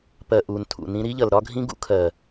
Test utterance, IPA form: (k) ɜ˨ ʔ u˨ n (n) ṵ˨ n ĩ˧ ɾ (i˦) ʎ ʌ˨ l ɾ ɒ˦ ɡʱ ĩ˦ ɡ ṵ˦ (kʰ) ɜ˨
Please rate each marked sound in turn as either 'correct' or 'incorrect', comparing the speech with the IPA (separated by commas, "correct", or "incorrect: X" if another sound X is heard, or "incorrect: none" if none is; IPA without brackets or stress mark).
incorrect: p, incorrect: tʰ, correct, correct